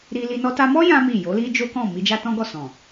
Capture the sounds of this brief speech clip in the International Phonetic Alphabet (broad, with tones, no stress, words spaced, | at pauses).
ɾi˧li˧ nɔ˧ta˧mɔ˦ jã˦mi˦˨ jo˨˦li˦ d͡ʒo˦kɔ̃˦˨ mi˧d͡ʒa˦tɔ̃˦ɡɔ˦˨ sɔ̃˨